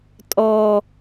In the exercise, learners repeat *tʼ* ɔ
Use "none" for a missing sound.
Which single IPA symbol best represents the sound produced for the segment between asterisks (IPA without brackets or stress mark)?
tʼ